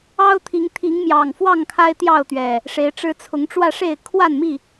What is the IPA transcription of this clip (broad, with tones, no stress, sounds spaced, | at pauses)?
ɑ˦ ʊ̯ t̪ʰ i˨˦ ŋ t̪ʰ i˨˦ ŋ m j ɑ˨˩ ŋ f w ɑ˥˨ ŋ kʰ a˦ ɪ̯ t̪ j ɑ˥˨ ʊ̯ t̪ ɥ ɛ˨˩ | ʂ e˨˦ ɪ̯ ʈ͡ʂ ɻ̩˦ t͡sʰ ʊ˨˦ ŋ ʈ͡ʂ w ä˥˨ ʂ e˥˨ ɪ̯ kʰ w a˥˨ n m i˥˨